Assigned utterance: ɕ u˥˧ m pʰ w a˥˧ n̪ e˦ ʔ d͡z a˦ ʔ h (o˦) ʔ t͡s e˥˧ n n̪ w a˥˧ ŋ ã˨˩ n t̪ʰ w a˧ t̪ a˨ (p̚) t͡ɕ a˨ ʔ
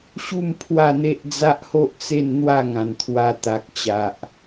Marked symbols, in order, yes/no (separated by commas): yes, no